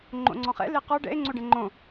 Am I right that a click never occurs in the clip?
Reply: no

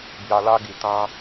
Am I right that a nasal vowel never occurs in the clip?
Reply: no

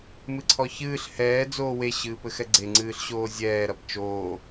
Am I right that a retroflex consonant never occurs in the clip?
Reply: yes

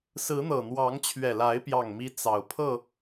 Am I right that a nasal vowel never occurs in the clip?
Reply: yes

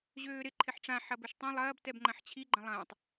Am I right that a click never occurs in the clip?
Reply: no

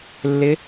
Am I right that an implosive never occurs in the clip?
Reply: yes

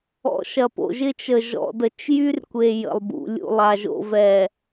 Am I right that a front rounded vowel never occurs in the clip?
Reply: no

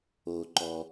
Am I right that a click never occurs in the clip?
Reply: no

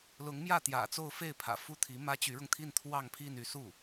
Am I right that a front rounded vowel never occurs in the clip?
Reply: no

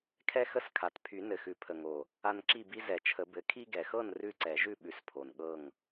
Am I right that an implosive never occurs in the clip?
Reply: no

